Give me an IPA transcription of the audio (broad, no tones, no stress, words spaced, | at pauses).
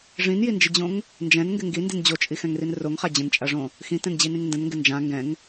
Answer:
ʐĩnjind͡ʒɪd͡ʑõŋ | nd͡ʒɛ̃nŋɡɪ ŋɡindin d͡ʑot͡ʃʼixɛ̃ŋrin roŋχa d͡ʑə̃nt͡ʃʼaʐõ | xĩtɛ̃nd͡ʑinĩŋ ndə̃nŋɡɪ nd͡ʒã ŋɡɛ̃ŋ